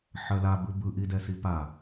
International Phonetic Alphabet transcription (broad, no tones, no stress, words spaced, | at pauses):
ħɜla bɯbɯ ʔidɛsipa